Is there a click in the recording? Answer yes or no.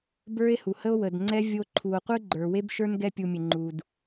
yes